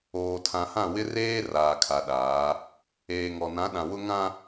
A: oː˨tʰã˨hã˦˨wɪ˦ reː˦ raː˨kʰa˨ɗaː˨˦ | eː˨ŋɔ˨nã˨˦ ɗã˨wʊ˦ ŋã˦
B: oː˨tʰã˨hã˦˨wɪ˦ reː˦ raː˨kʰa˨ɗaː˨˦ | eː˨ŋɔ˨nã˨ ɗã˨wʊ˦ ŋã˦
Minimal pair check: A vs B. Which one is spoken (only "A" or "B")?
A